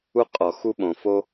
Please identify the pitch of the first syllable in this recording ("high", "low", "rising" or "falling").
high